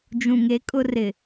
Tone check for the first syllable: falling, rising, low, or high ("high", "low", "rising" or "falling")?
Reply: low